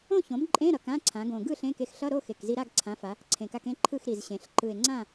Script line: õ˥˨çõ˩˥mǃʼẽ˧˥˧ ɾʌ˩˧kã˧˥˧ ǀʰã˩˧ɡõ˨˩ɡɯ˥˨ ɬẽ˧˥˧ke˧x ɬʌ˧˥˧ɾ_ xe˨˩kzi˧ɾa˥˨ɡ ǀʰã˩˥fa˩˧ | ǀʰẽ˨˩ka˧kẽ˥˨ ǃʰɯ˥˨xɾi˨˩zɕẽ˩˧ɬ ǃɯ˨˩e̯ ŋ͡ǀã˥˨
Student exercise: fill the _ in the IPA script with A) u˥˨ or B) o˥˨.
B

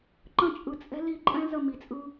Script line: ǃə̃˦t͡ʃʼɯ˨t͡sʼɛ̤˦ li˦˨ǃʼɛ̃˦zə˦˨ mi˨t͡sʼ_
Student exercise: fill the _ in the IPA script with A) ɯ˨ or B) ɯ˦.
B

